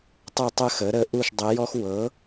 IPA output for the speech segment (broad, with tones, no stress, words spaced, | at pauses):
tˤə˥˨tˤə˥xə˩˥ɾə˧˥ ʔu˥˨ʃdˤə˧˥jɔ˥x wɤ˩˥